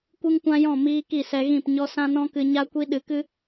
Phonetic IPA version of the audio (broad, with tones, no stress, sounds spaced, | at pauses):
kʷ ɨ˦ ŋ kʷ ã˦ j ɔ̃˦˨ m iː˦ k i˦˨ s ɛ˧ ɣ ĩ˦˨ p ɲ ɔ˦ s ã˦ n ɔ̃˦ k ɨ˧ ɲ a˦ kʷ i˦ ɗ ɨ˧ k ɨ˦